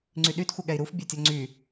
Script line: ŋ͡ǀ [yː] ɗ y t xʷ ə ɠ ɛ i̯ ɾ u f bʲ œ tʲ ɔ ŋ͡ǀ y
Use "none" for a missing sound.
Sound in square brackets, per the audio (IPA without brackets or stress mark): y